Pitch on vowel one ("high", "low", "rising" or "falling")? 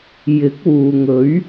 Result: rising